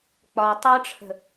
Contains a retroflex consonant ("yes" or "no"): yes